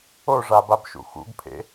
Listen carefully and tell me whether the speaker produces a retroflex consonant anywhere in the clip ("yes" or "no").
yes